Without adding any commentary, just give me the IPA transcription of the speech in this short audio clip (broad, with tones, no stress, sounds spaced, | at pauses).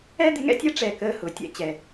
ɛ˥ d̪ ɪ˥ ŋ ɛ̰˥ tʲ ɛ˥ ʈ͡ʂ ɛ˧˩ k əː˧ h ʊ˩˧ tʲ ɛ̰˧ t͡ɕ ɛ˧˩